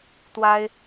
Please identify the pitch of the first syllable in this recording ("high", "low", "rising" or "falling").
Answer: high